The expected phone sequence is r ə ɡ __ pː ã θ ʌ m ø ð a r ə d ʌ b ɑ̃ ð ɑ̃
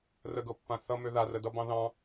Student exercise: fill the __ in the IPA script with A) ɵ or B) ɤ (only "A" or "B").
B